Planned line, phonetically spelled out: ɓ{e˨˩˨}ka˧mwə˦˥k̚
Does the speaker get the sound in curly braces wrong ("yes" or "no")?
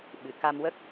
yes